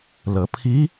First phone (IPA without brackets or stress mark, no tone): l